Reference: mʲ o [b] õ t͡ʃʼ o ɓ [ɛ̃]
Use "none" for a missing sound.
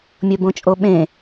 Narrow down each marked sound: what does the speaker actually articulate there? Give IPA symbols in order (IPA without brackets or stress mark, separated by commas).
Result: b, ẽ